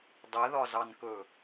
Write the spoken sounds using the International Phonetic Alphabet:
dˤ ɛ ð ɒ z ɑ n k ɵ

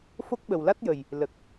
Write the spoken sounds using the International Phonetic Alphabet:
f o˦˥ k̚ ɓ ə˨˩ w l a˦˥ t̚ j ə˨˩ j | l ə˨˩ k̚

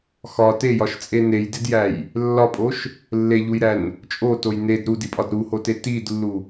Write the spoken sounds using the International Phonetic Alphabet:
x ɒ t e j ɒ ʃ t͡sʼ e n e j d e d j æ j | lː ɒ pʼ o ʃ | lː e ʎ u j ɾ æ n | t͡ʃʼ o t o j n e d ɾ u d i pʼ ɒ d ɾ u h o t e t i d lː u

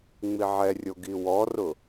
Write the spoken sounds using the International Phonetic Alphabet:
ŋ͡m i ʕ ɛ rʲ o ɡ i w ɔ r ʊ

